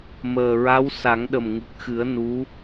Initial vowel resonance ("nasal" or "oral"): oral